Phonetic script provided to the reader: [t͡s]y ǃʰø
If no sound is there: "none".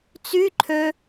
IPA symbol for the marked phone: t͡s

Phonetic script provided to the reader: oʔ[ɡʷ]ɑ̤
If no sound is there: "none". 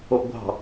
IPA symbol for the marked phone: ɡʷ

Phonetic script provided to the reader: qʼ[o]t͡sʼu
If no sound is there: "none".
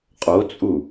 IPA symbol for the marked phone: o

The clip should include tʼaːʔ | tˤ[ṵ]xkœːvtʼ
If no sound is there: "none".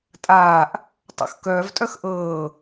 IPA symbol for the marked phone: ṵ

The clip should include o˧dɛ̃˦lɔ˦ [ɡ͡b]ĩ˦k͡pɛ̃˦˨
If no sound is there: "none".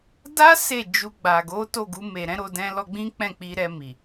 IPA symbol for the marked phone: ɡ͡b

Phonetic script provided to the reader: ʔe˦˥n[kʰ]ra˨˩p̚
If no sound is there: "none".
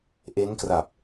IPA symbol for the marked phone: k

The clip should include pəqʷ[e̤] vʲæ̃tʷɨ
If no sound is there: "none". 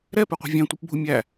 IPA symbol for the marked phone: e̤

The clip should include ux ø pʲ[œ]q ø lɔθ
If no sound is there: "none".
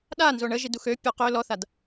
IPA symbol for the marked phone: œ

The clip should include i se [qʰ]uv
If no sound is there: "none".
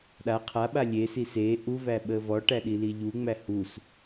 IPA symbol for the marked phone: ʔ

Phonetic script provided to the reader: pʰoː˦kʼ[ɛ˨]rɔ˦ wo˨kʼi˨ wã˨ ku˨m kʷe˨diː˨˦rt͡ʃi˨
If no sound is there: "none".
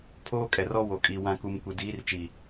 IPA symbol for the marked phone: ɛ˨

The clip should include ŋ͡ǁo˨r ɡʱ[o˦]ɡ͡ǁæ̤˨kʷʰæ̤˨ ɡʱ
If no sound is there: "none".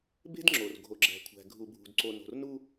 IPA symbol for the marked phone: o˨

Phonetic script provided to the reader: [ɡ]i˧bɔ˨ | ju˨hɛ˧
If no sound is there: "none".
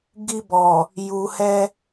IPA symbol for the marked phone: ɡ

